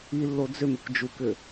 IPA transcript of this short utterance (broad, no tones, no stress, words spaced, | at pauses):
ilːo d͡zʏmekʷ d͡ʒukʏ